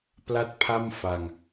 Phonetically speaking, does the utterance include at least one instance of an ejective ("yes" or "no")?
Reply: no